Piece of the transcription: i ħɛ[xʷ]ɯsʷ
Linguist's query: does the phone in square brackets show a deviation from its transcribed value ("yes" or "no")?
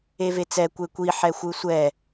no